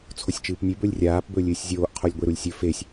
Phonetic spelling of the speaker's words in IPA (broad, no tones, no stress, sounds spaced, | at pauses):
t͡sʰ o sʲ t͡ʃ ɨː p nʲ ʉ b ɵ lʲ rʲ aː p b ɵː lʲ ɨː sʲ zʲ oː ʔ qʰ o lʲ ɡʷ e ɾ u lʲ sʲ ɵ f e sʲ